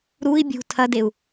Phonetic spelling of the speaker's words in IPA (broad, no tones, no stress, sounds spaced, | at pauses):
ɾ u i̯ bʲ ṳ tʰ ɐ d e u̯